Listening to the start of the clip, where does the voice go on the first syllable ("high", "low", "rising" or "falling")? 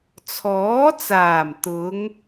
rising